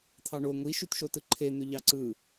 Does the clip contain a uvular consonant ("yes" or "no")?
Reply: no